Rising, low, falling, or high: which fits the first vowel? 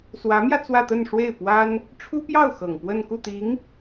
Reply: rising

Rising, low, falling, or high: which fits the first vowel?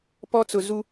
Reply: high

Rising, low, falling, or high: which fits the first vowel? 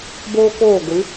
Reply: high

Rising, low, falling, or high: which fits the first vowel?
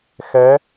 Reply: rising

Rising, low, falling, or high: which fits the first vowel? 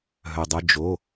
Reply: low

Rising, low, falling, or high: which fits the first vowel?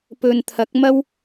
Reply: low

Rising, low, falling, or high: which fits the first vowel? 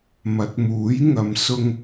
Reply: rising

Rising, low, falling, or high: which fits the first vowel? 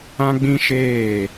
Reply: high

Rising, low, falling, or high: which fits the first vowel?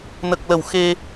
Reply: low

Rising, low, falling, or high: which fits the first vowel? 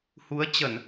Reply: rising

